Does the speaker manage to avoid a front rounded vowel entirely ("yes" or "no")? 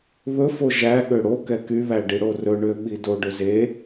no